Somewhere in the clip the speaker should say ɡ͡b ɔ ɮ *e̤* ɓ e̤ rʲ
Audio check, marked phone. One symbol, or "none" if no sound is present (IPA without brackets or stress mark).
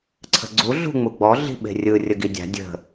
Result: i̤